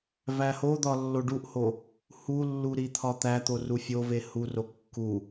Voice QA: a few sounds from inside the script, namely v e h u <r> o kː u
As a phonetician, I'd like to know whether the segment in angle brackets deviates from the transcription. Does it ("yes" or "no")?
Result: no